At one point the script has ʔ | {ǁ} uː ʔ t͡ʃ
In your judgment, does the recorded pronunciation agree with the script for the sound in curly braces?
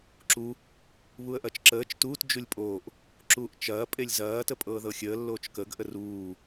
yes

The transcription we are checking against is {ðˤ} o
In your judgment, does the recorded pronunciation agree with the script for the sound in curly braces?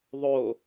yes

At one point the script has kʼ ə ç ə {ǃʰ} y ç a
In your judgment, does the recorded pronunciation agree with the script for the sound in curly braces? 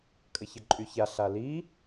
no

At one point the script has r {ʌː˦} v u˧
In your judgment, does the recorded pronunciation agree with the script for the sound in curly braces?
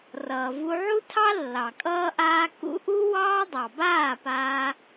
no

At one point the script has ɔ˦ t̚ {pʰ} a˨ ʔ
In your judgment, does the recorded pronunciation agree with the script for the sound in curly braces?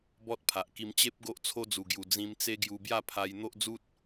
yes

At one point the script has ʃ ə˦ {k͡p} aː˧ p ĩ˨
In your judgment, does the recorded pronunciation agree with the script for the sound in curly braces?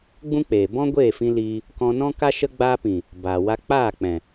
no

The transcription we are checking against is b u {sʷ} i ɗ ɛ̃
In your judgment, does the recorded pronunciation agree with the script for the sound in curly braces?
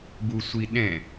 yes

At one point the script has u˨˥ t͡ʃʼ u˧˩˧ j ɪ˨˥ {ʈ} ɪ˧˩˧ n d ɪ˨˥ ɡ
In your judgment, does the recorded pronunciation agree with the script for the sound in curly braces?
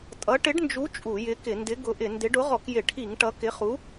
no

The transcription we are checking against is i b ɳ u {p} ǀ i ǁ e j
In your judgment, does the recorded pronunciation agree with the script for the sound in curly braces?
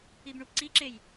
yes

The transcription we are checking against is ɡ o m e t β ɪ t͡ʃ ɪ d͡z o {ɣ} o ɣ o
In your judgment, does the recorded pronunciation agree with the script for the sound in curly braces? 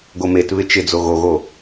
yes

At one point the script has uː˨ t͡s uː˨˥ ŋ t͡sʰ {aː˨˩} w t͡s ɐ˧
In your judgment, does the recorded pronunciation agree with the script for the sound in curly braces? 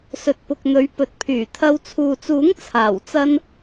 yes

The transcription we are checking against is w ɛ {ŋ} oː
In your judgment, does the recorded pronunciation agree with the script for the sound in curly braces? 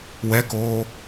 no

